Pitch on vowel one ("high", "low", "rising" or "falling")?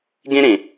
high